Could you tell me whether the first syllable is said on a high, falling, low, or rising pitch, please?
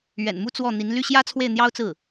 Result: low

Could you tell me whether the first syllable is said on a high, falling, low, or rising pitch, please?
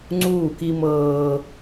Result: falling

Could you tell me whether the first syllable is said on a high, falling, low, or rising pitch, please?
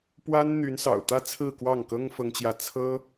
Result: high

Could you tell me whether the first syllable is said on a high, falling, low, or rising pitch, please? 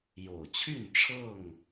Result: low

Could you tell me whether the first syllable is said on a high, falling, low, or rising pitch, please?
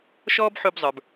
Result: high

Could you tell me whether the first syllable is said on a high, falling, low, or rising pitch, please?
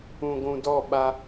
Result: low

